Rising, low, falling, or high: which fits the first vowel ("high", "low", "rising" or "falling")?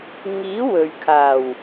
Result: rising